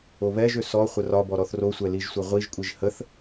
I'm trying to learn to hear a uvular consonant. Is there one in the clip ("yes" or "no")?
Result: yes